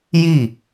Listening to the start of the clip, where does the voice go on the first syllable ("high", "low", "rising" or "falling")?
falling